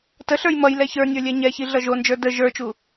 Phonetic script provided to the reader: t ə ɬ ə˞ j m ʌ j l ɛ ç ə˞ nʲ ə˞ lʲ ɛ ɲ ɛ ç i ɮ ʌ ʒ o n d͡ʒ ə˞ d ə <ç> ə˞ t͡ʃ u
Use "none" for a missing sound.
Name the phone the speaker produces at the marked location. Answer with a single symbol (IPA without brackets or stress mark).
ʒ